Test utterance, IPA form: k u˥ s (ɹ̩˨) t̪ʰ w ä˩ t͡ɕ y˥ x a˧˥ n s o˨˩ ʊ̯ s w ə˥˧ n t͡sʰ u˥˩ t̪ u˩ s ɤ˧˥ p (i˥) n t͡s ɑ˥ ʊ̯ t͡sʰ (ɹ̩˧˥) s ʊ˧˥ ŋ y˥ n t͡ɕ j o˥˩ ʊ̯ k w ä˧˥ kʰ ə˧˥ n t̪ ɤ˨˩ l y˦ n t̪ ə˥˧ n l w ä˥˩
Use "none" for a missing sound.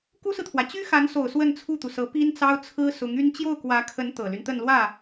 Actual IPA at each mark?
ɹ̩˨, i˥, ɹ̩˥

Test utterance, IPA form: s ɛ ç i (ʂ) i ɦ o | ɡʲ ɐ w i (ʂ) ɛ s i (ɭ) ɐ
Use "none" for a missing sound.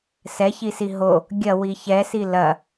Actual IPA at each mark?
s, ç, l

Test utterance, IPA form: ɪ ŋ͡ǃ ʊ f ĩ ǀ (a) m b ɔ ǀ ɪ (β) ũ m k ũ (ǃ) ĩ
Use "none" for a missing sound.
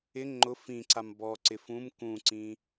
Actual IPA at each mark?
a, f, ǀ

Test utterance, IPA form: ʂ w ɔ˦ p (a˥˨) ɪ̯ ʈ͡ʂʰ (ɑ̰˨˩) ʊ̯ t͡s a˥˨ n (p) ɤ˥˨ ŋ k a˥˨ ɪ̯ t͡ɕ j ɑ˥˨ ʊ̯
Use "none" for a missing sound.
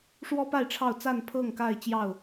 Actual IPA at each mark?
a˥˨, ɑ˥˨, pʰ

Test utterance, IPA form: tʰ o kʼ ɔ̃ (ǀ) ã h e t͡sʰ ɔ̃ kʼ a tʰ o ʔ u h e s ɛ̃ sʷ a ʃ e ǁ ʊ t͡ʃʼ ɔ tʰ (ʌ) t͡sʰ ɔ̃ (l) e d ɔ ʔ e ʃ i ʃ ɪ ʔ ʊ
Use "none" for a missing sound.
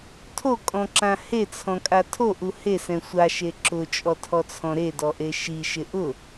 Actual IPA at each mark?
ǁ, ɔ, ɾ

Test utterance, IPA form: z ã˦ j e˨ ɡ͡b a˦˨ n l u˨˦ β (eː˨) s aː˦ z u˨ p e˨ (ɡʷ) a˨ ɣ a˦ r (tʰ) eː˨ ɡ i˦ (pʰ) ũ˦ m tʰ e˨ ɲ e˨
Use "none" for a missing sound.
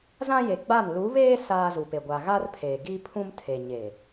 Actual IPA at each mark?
eː˦, ɡʷ, pʰ, pʰ

